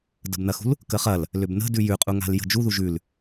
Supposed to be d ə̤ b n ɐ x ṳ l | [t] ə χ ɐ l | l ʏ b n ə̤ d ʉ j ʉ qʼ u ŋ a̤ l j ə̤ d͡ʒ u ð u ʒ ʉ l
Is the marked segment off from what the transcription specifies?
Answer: yes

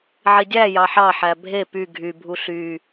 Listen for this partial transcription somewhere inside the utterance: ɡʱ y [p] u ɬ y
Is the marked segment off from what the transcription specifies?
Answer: yes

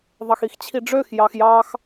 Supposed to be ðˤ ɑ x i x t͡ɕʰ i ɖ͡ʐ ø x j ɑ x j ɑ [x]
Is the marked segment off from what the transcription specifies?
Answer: no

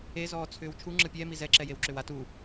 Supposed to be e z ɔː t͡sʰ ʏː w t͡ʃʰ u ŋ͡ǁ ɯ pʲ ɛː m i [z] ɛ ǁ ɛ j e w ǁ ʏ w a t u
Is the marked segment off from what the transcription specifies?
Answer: no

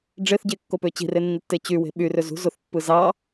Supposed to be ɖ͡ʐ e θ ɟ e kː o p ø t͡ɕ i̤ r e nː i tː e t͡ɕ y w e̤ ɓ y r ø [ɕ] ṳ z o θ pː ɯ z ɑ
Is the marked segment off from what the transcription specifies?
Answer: yes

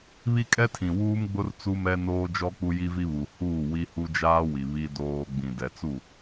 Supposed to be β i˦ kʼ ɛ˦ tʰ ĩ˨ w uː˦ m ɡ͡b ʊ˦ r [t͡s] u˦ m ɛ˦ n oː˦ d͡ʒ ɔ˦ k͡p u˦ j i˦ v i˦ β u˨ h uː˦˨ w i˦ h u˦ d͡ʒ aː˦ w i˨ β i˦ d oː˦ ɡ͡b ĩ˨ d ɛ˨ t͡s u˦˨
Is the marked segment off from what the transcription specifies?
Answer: no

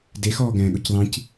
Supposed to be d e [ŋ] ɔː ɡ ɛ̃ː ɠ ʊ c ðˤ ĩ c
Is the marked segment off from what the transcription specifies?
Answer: yes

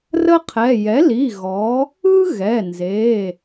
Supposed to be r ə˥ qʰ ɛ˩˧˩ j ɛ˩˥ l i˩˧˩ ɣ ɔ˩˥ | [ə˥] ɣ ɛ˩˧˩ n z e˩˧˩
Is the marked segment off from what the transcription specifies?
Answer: yes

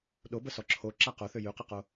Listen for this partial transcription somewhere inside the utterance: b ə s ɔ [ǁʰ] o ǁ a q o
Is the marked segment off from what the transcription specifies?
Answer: no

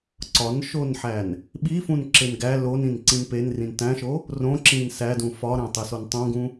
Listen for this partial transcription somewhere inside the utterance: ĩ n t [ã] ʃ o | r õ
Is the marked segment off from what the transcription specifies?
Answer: yes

